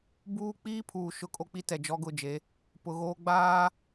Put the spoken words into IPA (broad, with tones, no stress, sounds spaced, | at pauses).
b uː˦ k͡p iː˦ pʰ uː˨ ʃ ʊ˦ kʼ o˦ k͡p i˦ t ɛ˨ d͡ʒ ɔ˦ ɡ ʊ˦˨ d͡ʒ e˨˦ | p ʊ˨ ɣ oː˦ ɡ͡b aː˦